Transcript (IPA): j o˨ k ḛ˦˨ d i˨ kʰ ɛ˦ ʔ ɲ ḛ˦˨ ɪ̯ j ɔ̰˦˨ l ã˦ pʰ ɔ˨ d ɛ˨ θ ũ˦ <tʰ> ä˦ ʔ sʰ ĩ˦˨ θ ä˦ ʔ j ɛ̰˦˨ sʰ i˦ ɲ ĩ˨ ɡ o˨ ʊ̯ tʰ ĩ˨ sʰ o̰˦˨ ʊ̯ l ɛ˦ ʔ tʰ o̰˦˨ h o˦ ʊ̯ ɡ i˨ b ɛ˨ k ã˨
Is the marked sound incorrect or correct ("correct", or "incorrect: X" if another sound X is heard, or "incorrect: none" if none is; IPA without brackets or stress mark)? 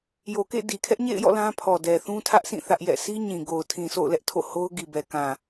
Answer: correct